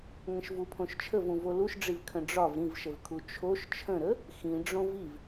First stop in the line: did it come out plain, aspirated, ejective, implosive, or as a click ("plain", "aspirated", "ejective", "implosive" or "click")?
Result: aspirated